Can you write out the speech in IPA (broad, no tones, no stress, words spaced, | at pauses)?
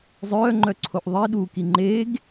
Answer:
zˤœːŋ͡ǃœǀʰoʔ ðˤiɗuːki ŋ͡ǃeɡ